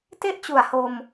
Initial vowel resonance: oral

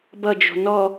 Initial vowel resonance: oral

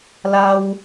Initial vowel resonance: oral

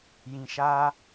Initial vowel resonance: nasal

